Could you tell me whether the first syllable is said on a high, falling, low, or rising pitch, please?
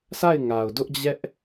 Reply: falling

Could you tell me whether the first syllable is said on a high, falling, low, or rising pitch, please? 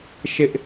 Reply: high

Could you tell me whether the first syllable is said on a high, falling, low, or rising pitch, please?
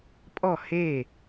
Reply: falling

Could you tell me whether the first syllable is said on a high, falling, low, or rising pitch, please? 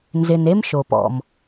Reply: low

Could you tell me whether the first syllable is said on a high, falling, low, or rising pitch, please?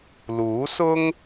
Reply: rising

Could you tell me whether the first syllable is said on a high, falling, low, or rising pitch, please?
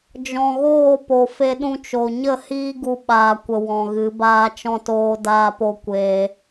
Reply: low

